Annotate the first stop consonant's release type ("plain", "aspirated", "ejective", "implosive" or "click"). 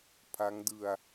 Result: aspirated